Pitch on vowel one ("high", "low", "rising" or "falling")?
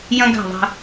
high